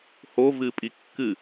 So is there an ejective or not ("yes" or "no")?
yes